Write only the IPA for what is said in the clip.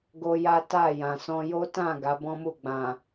ɡo˦ja˦ ta˦˨jã˨sɔ̃˧ jo˦tã˦˨ ɡa˨˦bɔ̃˦mu˦˨ɡ͡bã˨

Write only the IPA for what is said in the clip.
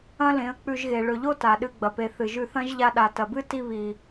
ɐ̃˦lẽ˨˦ə̯k͡pʉ˧ʒɣe˨ ɭɵ˨ʎo˦ ta˨ɗɨ˧ɡ͡bɐ˨pe˨ θɨ˨ʒʉ˧θɐ̃˦ʒ ʎa˧ɗa˨ tɐ˨bɨ˦ ti˧ βi˨

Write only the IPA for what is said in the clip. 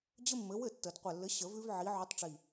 d͡ʑɘ˦mːɘ˨˦wɘ˥˩tːə˨˩˦d qʷɛ˨˩lːɘ˨˦ ɕə˨˩˦vʉ˦vʕi˨˦ ʕʉ˨˦tˤʈ͡ʂi˨˩

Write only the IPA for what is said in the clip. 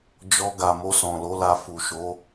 d͡ʒɔ˧ɡa˨ mo˧sɔ̃˨lo˨˦la˧ fu˨ʃo˨˦

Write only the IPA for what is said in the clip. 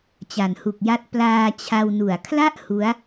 t͡ɕa˨˩nhu˨˩k̚ja˦˥t̚ plaː˧t͡ɕʰa˧wnu˨˩a̯ kʰla˥˩ʔ hu˦˥a̯

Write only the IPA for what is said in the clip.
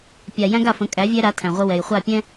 pʲa˨ jæ̃˦ɡa˦˨fə̃˨˦ kʼæ˨˦vʲæ˦ɾa˨˦ tʰæ̃˨ʁʷə˦ wɛ˨jχʷa˦˨pʲɛ̃˦

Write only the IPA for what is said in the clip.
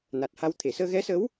na˨˩t̚ha˧w t̪ʰe˨˩˨səː˧ɣɛ˧˥sə˧˥w

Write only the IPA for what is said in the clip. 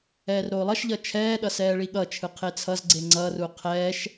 ɛːrɾoːlˠʌʃʎʌ t͡ʃʰɛːɗʌ sɛːɭiɠʌt͡ʃʰɯ qʰet͡sʰʌzɡ͡ǀe ŋ͡ǀʌru qʰɛːʃ

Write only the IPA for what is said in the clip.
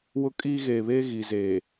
wʊ˦kʼiː˦ɣeː˨ βeː˦ɣi˨ zeː˨

